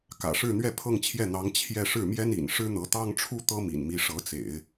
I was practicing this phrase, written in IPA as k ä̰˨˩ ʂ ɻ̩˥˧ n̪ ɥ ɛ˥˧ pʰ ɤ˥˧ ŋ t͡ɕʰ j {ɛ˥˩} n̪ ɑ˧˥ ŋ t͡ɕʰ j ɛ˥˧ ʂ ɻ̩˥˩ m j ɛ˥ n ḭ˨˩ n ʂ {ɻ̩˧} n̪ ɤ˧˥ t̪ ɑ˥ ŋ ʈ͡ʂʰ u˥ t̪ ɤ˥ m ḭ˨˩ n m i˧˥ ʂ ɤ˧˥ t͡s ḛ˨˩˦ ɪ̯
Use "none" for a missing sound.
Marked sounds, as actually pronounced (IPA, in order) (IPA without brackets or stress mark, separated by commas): ɛ˥˩, ɻ̩˥